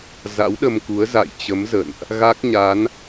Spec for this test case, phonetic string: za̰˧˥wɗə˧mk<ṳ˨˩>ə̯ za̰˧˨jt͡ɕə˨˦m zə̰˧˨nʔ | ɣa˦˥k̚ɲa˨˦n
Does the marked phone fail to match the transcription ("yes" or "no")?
yes